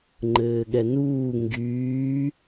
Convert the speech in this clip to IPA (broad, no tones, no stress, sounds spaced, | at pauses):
ŋ͡ǃ ɘː ɠ ɛ n uː ŋ ɡ yː